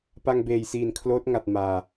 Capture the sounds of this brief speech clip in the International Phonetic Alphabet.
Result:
p a˧ ŋ b eː˨˩ j s iː˨˩ n kʰ l oː˦˥ t̚ ŋ a˨˩ t̚ m aː˨˩

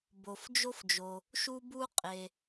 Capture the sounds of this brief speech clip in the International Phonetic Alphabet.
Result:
b o˩ f d͡ʒ o˥ f d͡ʒ o˩ | ʃ u˥ b u˥ qʼ e˩

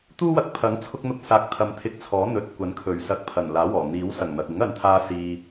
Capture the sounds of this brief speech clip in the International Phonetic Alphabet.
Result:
t̪ uː˥ w ɐ˨˥ k̚ pʰ ɐ˨˥ ŋ t͡sʰ ʊ˧ k̚ n̪ ʊ˧ k̚ s aː˨ k̚ t̪ʰ ɐ˨ m t̪ʰ ɪ˧ k̚ t͡sʰ ɔː˨˥ n̪ ɵ˨ t̚ kʷ ɐ˨˥ n kʰ ɵ˨˩ ɥ s ɐ˧ k̚ pʰ ɐ˨˩ n l aː˨˥ w ɔː˨˩ n̪ iː˨˥ w s ɐ˨˩ ŋ n̪ ɐ˨ k̚ ɪ˨˥ ŋ ɐ˨˧ n t̪ʰ aː˧ s iː˧

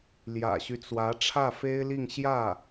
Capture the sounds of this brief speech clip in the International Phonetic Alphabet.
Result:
l j ä̰˨˩ ɕ y˦ t͡s w ä˧˥ ʈ͡ʂʰ ä˥˩ f e˥ ɪ̯ l i˥˧ ŋ ɕ j ä˥˩

